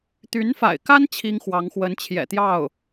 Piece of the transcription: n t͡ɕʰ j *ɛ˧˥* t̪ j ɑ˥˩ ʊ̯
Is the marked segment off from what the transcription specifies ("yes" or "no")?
yes